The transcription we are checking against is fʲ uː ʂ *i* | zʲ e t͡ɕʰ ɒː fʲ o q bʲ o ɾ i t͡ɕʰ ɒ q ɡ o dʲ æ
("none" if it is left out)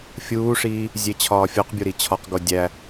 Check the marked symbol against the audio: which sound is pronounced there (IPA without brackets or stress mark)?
iː